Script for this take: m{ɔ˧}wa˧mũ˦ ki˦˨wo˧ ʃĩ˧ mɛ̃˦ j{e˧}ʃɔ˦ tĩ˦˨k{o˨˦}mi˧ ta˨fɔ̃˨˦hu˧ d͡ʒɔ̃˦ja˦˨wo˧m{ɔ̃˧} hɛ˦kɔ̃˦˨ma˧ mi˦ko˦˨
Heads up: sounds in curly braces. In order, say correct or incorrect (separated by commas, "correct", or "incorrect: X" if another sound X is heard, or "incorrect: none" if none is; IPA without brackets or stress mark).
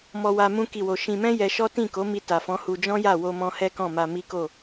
correct, incorrect: ɛ˧, correct, correct